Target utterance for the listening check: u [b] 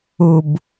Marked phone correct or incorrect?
correct